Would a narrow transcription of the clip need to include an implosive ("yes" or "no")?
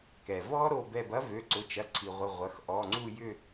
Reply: no